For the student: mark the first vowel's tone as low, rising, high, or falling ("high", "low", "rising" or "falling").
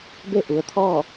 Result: falling